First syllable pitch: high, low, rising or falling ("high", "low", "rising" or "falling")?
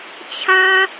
high